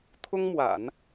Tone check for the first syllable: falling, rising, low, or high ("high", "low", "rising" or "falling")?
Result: high